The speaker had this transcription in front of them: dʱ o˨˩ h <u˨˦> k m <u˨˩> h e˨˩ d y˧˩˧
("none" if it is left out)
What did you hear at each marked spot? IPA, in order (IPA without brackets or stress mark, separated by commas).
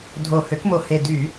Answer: ø˨˦, o˨˩